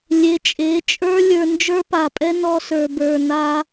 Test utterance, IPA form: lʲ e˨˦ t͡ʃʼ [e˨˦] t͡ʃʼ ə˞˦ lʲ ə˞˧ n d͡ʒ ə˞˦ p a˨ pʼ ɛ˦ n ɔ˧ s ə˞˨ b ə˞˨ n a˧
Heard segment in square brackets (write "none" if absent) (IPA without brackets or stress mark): e˨˦